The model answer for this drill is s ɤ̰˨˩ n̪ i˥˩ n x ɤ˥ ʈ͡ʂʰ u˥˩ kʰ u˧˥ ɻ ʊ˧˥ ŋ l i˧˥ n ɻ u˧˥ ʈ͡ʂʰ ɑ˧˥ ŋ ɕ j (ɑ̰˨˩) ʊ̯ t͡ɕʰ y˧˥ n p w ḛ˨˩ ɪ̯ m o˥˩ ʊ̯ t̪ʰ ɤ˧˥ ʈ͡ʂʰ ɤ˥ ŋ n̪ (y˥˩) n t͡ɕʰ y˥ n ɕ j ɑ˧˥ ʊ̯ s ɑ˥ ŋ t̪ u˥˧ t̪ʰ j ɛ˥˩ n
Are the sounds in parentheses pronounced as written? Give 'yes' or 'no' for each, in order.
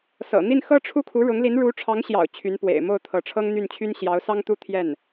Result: yes, yes

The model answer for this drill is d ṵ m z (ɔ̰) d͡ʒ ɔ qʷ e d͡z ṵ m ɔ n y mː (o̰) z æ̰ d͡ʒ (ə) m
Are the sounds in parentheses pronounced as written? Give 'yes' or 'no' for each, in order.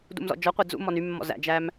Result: yes, no, no

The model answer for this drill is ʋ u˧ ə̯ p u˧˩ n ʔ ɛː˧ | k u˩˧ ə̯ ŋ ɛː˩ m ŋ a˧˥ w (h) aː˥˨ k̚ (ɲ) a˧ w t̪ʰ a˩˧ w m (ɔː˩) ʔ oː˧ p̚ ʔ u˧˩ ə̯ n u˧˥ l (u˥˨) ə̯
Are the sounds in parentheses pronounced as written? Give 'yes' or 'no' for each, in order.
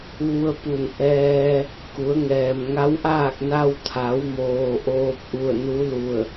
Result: no, no, no, no

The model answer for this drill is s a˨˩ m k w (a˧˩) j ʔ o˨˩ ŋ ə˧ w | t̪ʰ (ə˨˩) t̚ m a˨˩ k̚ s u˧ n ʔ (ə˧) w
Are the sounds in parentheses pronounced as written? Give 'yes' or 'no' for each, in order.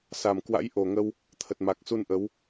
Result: no, yes, no

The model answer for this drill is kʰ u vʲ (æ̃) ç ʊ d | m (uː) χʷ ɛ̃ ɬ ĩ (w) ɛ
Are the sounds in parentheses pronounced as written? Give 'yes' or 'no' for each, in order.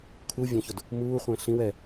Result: yes, yes, yes

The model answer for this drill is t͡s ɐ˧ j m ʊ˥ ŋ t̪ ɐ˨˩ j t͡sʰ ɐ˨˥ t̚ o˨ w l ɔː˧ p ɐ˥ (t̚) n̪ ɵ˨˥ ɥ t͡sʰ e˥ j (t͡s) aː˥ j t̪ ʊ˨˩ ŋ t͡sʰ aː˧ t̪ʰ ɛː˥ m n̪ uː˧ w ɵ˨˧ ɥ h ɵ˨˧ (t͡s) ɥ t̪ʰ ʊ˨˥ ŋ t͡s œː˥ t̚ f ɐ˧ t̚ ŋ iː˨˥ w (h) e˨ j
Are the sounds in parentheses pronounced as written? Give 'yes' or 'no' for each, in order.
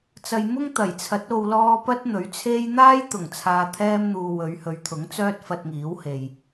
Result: yes, no, no, yes

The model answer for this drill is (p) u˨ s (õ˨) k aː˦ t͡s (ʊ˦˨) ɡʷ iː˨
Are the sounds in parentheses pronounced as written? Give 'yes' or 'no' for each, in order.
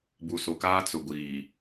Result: no, no, no

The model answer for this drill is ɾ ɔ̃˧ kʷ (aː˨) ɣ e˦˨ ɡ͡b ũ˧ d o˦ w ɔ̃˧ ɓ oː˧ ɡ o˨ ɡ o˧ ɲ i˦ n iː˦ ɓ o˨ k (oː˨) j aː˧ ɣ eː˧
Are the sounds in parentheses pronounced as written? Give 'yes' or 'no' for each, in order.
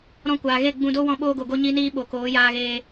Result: yes, no

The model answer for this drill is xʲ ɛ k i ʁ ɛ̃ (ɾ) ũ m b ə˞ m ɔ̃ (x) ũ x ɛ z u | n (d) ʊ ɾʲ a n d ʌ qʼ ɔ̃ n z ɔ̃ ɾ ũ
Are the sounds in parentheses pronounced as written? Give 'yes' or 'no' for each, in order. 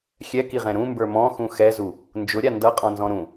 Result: yes, yes, no

